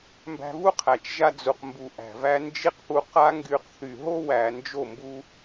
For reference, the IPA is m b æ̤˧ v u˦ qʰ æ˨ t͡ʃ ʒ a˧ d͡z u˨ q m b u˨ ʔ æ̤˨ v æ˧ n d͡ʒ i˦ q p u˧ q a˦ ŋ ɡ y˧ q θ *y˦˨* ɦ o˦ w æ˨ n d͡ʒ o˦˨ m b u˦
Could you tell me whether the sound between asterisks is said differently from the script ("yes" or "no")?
yes